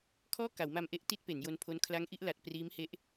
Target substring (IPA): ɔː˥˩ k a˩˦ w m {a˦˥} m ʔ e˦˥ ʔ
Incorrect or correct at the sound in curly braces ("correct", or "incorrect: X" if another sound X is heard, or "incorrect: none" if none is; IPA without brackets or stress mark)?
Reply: incorrect: a˧